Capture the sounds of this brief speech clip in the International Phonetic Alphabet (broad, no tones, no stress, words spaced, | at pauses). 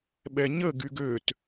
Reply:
ɓɛɲə ɡyɡøt